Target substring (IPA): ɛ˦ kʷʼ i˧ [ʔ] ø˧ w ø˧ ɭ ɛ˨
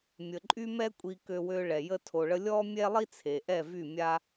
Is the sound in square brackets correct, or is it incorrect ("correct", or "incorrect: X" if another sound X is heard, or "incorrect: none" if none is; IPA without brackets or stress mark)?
incorrect: k